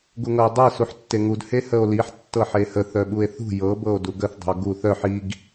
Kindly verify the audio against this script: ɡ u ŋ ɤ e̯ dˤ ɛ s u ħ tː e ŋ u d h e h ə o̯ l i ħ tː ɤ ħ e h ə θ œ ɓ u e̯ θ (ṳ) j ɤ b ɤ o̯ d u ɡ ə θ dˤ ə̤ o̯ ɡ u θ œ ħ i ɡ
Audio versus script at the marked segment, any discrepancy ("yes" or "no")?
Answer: no